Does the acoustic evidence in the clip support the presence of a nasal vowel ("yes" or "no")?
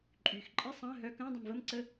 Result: yes